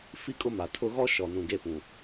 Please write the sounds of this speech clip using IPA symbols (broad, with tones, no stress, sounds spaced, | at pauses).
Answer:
f i˦ kʼ ʊ˦ m a˨ tʰ ʊ˦ ɣ ɔ˦ ʃ ɔ˨ n ũ˨ ɡ e˦ p ũ˨